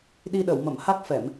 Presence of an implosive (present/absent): present